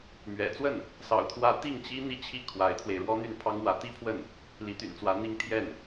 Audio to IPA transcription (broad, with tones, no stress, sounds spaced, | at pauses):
m ɥ ɛ̰˨˩ t͡s w ə˥˩ n | s ɑ̰˨˩ ʊ̯ t̪ʰ w ä˧˥ t̪ i˥˩ ŋ t͡ɕ i˥ n̪ i˥˧ t͡ɕʰ i˥˩ kʰ w a˧˥ ɪ̯ t̪ʰ w e˧ ɪ̯ ɻ w ɔ˥ n̪ y˥˩ n pʰ ɑ˥ ŋ w ä˧˥ t̪ i˥ pʰ w ə˥˩ n | l i˧˥ t̪ y̰˨˩ n t͡s w ä˧˥ n̪ i˥ ŋ t̪ʰ j ɛ˥˩ n